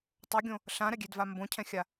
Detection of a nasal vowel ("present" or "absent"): present